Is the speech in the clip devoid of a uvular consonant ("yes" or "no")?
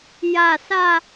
yes